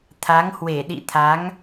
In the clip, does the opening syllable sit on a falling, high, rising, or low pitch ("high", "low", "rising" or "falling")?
rising